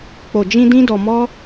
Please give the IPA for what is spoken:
k͡p o˨ d͡ʒ ĩ˧ d ĩ˦ d ɔ˧ m ɔ˦

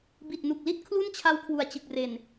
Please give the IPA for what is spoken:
b i˨˩ t̚ n u˨˩ k̚ l i˥˩ t̚ kʰ l u˥˩ n t͡ɕʰ a˦˥ w kʰ w u˨˩ a̯ t͡ɕ ɯ˨˩ k̚ r e˨˩ n

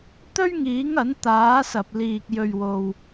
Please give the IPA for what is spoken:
t̪ ɵ˥ ɥ ŋ iː˨˥ ŋ ɐ˨˥ n t̪ aː˨˥ s ɐ˨ p̚ l iː˨ k̚ j ɵ˨ ɥ w o˨ w

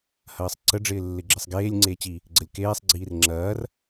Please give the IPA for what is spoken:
h ɐː sˤ ǀ ə ɖ͡ʐ ɪː lː ɪ ɡ͡ǁ ɪ sˤ ɡ eː lʲ ŋ͡ǀ eː t͡ɕ i | ɡ͡ǀ ə lʲ k eː sˤ ɡ͡ǀ iː r ŋ͡ǁ ɐː r

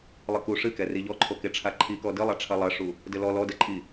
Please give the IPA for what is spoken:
lˠ ɨ k u ʂ ɨ k ɛ r i ʎ ɔ ǃʰ o k e ʈ͡ʂʰ a ǃʰ i k ɔ d ɨ lˠ a ʈ͡ʂʰ ɐ lˠ ɐ ʂ u | d ɘ l ɔ l ɔ d ɛ ǃʼ i

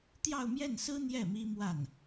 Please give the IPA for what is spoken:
t̪ j ɑ˥˧ ʊ̯ m j ɛ˥˩ n s ɹ̩˥ n̪ j ɛ˥˩ m i˥ m w a˥˩ n

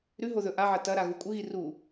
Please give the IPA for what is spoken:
ɾ ʉ ɦ o ð ɵ ʔ a ʕ ɐ t ɐ ɾ a ɣ u kʷʼ ɨ ɣ i r u

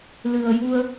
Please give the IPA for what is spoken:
l ɨ˨˩ ə̯ j u˧ ə̯

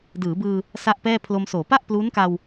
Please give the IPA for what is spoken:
d ɯː˩˦ b ɯː˧ | s a˥˩ ʔ p ɛː˥˩ pʰ l o˧ m s oː˩˦ p a˥˩ ʔ p l u˦˥ n k a˧ w

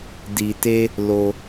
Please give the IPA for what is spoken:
d i˧ t e˦ | l o˦

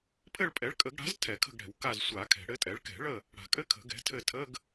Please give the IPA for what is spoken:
pʰ ɘ˦˨ ɭ pʼ ɛ˩˥ ɭ kʼ ə˨˩˦ ɡ ɽ a̤˩˥ z tʰ ɛ˨˩˦ kʰ ə̤˦˨ ɡ ɽ ɛ̤˨˩˦ w k a˦˨ z sʷ a˨˩˦ kʰ ɛ̤˨˩˦ ɽ ɘ˩˥ tʼ ɛ˩˥ ɭ k ɛ̤˨˩˦ ɭ ə˦˨ | ɽ a̤˨˩˦ kʼ ɘ˧˥˧ kʰ ə̤˨˩˦ ɡ ɛ̤˩˥ tʰ ɘ˦˨ tʰ ə˧˥˧ ɡ

